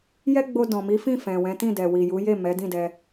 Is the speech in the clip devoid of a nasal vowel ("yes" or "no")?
no